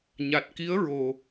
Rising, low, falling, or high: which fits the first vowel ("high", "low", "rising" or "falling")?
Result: low